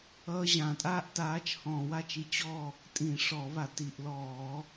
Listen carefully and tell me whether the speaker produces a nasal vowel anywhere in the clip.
yes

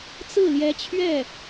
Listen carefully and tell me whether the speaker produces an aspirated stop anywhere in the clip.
yes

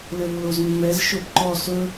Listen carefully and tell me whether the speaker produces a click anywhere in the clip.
yes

